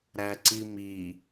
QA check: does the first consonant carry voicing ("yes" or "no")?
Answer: yes